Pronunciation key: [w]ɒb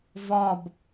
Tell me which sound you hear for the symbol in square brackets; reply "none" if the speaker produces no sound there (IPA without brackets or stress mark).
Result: v